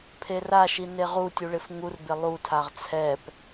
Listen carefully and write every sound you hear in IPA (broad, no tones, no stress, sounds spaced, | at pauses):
pʰ e r a ʃ i n e ʁ u tʲ u ɭ ɪ f ŋ u r b ɪ lˠ u tʰ a ʁ t͡sʰ ɛ p